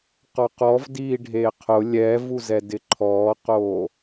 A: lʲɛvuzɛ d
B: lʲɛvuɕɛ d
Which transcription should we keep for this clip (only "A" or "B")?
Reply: A